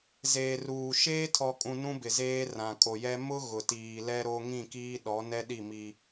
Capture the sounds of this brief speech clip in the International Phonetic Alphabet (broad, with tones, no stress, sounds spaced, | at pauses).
z eː˨ r uː˨ ʃ eː˦ tʰ ɔ˨ kʼ ũ˨ n ũ˦ b ɪ˨ z eː˦ r ã˨ kʼ o˨ j ɛ˦ m ʊ˦ ɣ ʊ˨ t iː˨ l ɛ˦ ɾ o˦ ŋ ĩ˦˨ k iː˦ ɗ ɔ˨˦ n ɛ˦ ɗ i˦˨ m i˦